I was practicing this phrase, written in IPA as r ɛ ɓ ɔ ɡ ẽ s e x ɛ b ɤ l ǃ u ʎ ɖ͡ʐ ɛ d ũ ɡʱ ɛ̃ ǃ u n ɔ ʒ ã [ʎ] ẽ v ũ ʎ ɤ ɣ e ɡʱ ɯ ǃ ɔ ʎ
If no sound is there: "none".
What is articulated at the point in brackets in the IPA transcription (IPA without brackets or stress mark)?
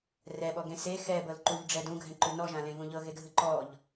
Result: l